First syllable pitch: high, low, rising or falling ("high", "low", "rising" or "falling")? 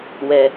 low